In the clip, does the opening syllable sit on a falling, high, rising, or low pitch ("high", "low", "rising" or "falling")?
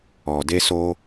low